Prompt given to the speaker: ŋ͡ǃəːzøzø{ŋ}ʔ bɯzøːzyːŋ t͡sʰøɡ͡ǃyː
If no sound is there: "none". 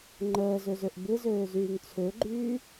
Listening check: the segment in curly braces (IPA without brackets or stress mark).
none